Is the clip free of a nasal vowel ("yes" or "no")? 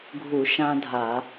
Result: no